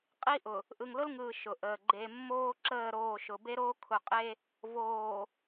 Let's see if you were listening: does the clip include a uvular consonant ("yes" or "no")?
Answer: yes